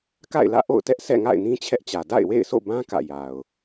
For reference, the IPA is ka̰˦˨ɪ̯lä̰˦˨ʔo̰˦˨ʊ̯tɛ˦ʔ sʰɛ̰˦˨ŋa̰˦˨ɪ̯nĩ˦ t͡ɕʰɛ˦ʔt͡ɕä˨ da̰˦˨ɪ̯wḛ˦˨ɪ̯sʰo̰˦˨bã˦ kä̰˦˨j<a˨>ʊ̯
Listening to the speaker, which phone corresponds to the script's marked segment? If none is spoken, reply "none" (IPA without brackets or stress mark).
a˨